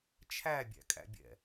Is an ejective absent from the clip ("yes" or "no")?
no